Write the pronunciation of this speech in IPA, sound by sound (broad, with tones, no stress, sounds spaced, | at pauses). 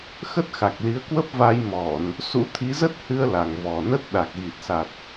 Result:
x ə˦˥ t̚ x a˨˩ k̚ l i˨˦ ə̯ k w ə˦˥ p̚ v a˧ j m ɔ˧˩˨ n | s ṵ˧˥ t̪ʰ i˨˦ z ə˦˥ t̚ h ɨ˧ ə̯ l a˨˩ ŋ v ɔ˨˩ n ə˦˥ t̚ ɗ a˨˩ k̚ ɣ i˨˩ t̚ s a˨˩ t̚